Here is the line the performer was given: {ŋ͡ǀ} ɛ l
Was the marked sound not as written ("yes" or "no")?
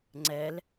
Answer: no